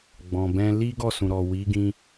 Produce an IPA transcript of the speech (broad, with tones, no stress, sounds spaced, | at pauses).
ɡ͡b ɔ̃˨ b ɛ̃˧ l i˦ ɡ ɔ˦˨ s ũ˨ ɾ ɔ˨ w i˨˦ ɡ ĩ˧